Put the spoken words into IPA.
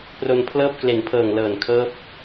p r o˧ n pʰ l ɤː˥˩ p̚ k l e˨˩ n pʰ ɤː˨˩ ŋ l ɤː˨˩ n kʰ ɤː˦˥ p̚

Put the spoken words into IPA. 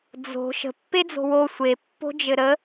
d͡z o̤ ʃ ə̤ pː e d͡z o̤ w o sʷ e pː o̤ d͡ʒ ɘ ɾ ə

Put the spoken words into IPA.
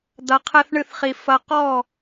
d̪ ɐ˧ qʰ ɛ˦ θ ɳ ɨ˦ θ χ i˧ f ɐ˧ q ɔ˦˨

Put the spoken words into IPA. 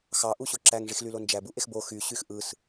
x ɑ ʔ u ɕ o ǁ æ ŋ ʐ i x l y l o n d͡ʒ æ b u ʔ e x b o x y ɕ y x ʔ ɯ s

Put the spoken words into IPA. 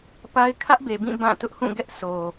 p a˦ ɪ̯ kʰ ä˦ ʔ b e˨ b ĩ˦˨ b ã˦˨ t ʊ˦ ʔ h ũ˦˨ ɡ ɛ˦ ʔ s o˨

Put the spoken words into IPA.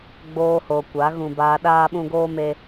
ɡ͡b oː˧ h o˨ kʷ a˨˦ ɣ ũ˧ b aː˧ ɗ aː˦ ɓ ũ˦ ɡ oː˦ m e˧

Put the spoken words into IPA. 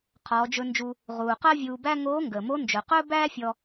qʰ ɔː˩˧ d͡ʒ ɵ˧ n d͡ʒ u˧ | ʁ uː˩ q əː˥ vʲ uː˧ b æ˥ ŋ oː˧˥ ŋ ɡ əː˩ m o˧˥ n d͡ʒ ɵ˩ q ɵː˥ b æː˥ fʲ ɔ˧

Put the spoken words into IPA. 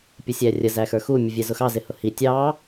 pʲ ə sʲ æ rʲ ə z æ x ə˞ x u mʲ ə vʲ ɛ z ʊ x ɑ z ɪ h ʊ h i tʲ ɑ

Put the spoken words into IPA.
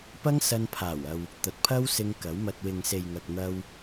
p ɐ˥ ŋ s ɐ˧ n pʰ aː˨˩ w ɐ˨ w | t̪ ɐ˨ t̚ pʰ ɐ˥ w s ɪ˧ ŋ k ɐ˨˥ w m ɐ˧ t̚ w ɪ˨ ŋ s e˨ j ŋ ɐ˨ k̚ n̪ ɐ˧ w

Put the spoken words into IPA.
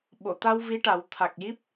ɓ o˨˩˨ t̪ a˧ w v i˧˥ ʈ a˨˩˦ w t̪ʰ a˨˩ k̚ j i˦˥ p̚

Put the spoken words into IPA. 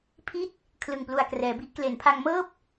pʰ i˥˩ t̚ | kʰ l ɯ˨˩ ŋ p l u˨˩ a̯ k r ɛː˩˦ b i˦˥ ʔ k l e˩˦ n pʰ a˧ ŋ m ɤː˥˩ p̚

